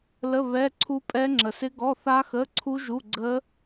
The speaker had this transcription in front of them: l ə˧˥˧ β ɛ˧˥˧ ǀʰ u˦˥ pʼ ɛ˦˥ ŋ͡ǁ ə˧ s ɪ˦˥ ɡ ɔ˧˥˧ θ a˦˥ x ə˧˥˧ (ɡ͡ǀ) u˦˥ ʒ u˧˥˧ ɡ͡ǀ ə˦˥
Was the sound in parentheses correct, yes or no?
no